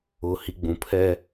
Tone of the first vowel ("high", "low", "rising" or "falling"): low